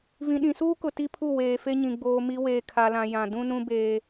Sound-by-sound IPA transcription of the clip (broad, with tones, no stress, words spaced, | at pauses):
vĩ˨ɗĩ˨suː˦kʊ˨ ti˦pʰu˦˨ weː˨fe˦ɲĩ˨ ɡ͡boː˨ mi˨ weː˨kʰa˨lã˨ jã˨ dũ˦ nũ˦beː˦